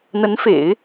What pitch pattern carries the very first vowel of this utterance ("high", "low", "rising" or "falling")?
rising